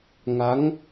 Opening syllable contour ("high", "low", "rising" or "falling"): rising